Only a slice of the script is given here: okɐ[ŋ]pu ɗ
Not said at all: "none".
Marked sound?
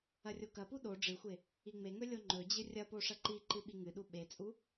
none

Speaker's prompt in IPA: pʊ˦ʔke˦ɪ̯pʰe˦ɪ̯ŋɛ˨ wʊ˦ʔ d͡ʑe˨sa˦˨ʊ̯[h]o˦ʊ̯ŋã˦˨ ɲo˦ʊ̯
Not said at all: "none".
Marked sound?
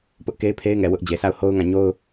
h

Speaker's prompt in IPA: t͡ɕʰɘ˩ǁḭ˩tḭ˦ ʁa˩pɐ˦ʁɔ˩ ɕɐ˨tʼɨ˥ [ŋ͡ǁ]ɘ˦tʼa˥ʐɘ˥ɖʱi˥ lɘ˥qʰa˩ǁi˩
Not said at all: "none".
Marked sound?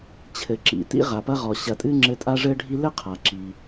ŋ͡ǁ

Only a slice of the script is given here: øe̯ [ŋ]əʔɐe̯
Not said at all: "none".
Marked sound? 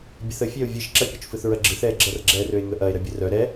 ŋ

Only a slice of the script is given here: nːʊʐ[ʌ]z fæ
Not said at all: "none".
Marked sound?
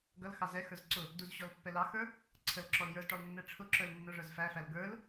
ə˞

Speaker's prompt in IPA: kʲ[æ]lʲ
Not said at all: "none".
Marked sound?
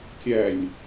æ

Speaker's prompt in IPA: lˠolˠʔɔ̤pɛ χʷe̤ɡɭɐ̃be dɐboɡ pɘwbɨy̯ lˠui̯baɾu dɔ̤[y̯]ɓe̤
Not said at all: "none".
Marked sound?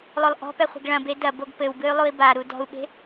u̯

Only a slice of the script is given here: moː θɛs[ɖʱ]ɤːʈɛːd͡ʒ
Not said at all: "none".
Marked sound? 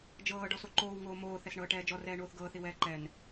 ɳ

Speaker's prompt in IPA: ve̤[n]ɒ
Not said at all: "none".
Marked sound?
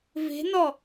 n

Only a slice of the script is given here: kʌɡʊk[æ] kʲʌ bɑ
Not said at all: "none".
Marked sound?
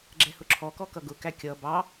æ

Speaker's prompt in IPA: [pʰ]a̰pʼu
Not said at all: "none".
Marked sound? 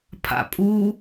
pʰ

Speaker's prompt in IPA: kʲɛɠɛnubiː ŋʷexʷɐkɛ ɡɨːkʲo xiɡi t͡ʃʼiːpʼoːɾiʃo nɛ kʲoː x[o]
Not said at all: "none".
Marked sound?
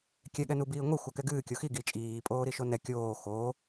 oː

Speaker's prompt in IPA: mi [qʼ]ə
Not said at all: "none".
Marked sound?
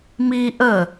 ʔ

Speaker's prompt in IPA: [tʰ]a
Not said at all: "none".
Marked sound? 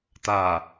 t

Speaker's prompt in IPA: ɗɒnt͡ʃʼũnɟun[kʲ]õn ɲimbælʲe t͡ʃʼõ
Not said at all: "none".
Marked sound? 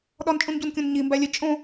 kʲ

